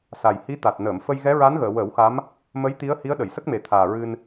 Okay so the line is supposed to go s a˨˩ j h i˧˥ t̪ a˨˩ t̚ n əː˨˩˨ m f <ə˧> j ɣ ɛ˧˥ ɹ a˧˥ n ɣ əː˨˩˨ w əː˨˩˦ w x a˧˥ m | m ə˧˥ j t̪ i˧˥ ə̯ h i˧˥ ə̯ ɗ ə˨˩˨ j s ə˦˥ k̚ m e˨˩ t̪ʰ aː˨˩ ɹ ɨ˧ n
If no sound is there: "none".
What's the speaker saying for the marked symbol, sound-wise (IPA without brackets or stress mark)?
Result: ə˧